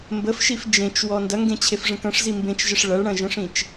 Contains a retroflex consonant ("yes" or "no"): yes